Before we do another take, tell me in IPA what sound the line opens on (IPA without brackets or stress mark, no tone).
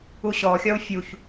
u